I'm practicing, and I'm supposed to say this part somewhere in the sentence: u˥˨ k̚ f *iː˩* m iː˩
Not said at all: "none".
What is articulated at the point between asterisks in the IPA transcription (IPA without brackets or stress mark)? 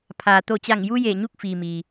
iː˩